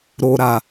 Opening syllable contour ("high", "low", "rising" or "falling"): low